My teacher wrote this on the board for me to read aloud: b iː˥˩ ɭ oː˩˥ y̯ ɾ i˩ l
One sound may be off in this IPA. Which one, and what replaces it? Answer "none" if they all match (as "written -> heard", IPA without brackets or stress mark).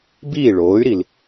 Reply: none